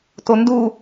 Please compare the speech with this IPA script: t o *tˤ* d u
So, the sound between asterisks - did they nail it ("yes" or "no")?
no